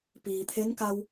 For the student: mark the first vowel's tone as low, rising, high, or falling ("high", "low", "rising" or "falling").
low